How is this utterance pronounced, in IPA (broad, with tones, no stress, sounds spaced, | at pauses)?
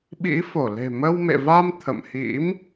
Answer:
ɓ ḭ˧˥ f o˧˩ l e̤˨˩ m ə˧ w m ḛ˧˨ v a˧ m t̪ʰ ə̰˧˨ m h ḭ˧˥ m